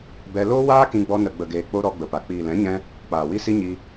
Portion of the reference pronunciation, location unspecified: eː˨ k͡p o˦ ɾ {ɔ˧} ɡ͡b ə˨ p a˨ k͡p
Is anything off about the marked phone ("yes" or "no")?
no